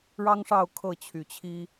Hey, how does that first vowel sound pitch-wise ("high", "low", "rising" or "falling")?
high